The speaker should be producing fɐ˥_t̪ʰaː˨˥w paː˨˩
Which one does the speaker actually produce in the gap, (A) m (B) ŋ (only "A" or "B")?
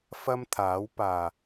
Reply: A